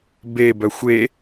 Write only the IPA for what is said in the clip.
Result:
be bœxʷe

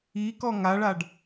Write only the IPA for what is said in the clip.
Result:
ikɔ ŋaɭaɖ

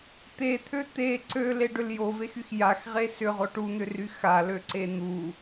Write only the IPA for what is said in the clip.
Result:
t̪et̪ʰø t̪e ǀøleɖʏl jovexyx jaxʁe sʏʁo ʈun̪ʏry xaløǀe n̪u

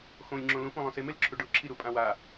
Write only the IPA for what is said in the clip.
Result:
xõlʲŋ͡ǁõ lũfũ lˠõsemelǁʰu ɖʊ ǁʰiɾupʼãwa

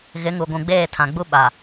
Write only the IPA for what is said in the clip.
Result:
ɣɪ˨˦ŋu˨ɡʷũ˨ ɡ͡beː˦˨tʰã˨ɡ͡bu˦ ɓa˨

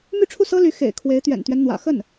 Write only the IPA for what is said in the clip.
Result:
my˥˧ʈ͡ʂʰu˥˩sɤ˥ly˧˥ xḛ˨˩ɪ̯ kʰwe˧˥ɪ̯t̪ɥɛ̰˨˩nt̪ɥɛ˦nn̪wä̰˨˩ xə˥˩n

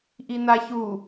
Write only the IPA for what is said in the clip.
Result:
ʔinaçu

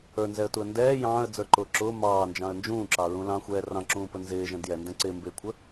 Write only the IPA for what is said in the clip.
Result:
ə˞nzɛə̯tuə̯ ndɛː jɑ̃ːə̯d͡zə˞ǃʊː ǁʊː mɑːnd͡ʒɑ̃ə̯ nd͡ʒũːǁɑɹũ lɑ̃xʷɛː rɑ̃ǁũːpə nzɪːʒɛ̃d jɛndɛ̃ ǀɪːmbɪːkʷʰə

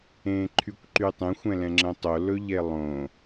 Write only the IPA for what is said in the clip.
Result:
ẽːǃʰykʷǃytˤẽxʷ ɛ̃lɛ̃ŋ͡ǁə̃tˤo lɵʎelˠõ

